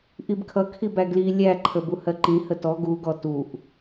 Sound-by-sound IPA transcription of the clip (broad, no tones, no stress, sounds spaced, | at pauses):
ʔ i b kʰ ʌ kʰ i b æ ɡ l i lʲ æ ǃʰ ə b u h ɜ ǃ ĩ h ə t ɔ ɡ u ɡ ɔ t u ʔ